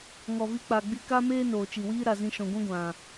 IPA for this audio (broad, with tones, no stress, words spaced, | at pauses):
ŋɔ˨vi˧k͡pa˨ɡ͡bi˧ ka˦meː˦ noː˨t͡ʃi˨wiː˦ ɾa˨ zĩ˧ʃɔ̃˨ɡʷɛ̃˦ ɡʷã˨